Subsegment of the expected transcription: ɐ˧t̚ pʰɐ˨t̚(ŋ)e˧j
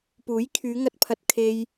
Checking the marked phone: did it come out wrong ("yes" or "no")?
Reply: yes